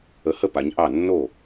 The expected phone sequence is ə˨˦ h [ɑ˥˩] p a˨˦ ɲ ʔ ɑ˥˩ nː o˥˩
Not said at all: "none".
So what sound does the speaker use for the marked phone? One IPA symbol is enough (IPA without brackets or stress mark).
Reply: ə˥˩